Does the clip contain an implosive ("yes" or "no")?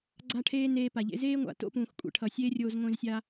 no